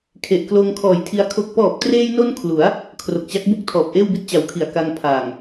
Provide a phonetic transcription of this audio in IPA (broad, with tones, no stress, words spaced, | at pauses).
kʰe˨˩ʔkloː˧ŋkʰɔː˨˩jtʰi˧a̯ kʰo˨˩k̚pɔː˨˩p̚treː˧jno˧n kʰlu˩˦a̯ | kʰro˨˩k̚t͡ɕa˦˥k̚bu˥˩k̚ tʰɔː˨˩p̚ʔeː˥˩wbi˥˩t̚ t͡ɕa˨˩wkʰi˨˩a̯ ka˧ŋ pʰaː˨˩ŋ